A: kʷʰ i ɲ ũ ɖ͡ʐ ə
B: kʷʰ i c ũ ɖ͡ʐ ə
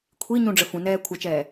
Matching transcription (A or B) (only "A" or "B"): A